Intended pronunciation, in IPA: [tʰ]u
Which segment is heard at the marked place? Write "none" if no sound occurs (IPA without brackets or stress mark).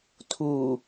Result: tʰ